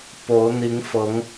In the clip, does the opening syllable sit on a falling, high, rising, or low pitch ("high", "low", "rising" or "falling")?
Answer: rising